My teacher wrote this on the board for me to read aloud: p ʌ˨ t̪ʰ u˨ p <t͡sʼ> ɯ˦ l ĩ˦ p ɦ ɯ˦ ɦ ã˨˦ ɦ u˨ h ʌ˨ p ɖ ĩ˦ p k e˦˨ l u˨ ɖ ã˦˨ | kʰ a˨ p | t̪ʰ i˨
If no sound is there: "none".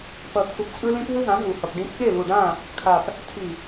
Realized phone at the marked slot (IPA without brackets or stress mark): t͡sʼ